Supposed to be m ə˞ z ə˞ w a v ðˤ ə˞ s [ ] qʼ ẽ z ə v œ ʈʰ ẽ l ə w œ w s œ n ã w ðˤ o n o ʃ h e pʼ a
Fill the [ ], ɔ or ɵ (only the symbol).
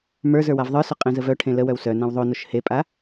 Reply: ɵ